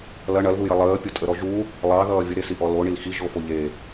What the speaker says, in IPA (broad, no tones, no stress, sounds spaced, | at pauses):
l ɐ ɳ ɐ l ð u j ɐ lˠ əː pʲ o tʼ ə ɾ ɔ ʒ u | lˠ ɑ ð ʌː vʲ ə ɾ e s i ʔ ɔ l o ɳ i l x i ʒ o f o ʎ e